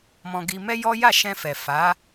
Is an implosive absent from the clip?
yes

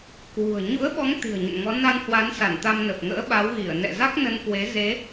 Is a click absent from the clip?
yes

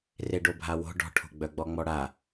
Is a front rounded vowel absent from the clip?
no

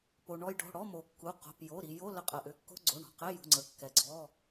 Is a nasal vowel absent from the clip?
yes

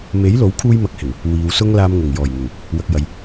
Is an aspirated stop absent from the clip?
no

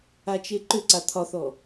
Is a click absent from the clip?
no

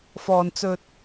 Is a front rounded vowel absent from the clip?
yes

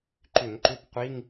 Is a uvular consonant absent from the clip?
no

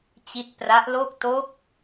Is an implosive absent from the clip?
yes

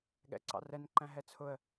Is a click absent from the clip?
no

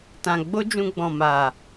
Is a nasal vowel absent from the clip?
no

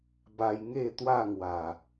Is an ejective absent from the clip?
yes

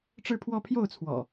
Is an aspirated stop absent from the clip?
no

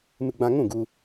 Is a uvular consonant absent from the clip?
yes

